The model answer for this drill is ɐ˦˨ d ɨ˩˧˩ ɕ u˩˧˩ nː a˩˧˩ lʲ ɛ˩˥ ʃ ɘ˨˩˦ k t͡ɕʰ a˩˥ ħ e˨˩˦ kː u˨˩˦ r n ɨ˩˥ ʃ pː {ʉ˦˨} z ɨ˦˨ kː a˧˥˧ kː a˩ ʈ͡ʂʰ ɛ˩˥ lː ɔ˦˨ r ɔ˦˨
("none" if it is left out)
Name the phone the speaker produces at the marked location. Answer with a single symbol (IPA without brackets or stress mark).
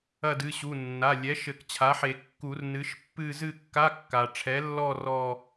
ɨ˦˨